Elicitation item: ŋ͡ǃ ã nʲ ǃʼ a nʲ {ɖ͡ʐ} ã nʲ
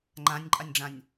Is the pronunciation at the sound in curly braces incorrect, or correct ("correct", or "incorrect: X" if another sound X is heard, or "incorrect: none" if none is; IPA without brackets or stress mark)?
correct